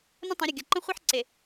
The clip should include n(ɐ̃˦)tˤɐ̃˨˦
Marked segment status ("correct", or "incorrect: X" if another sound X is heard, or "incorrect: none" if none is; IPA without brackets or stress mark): incorrect: ə̃˦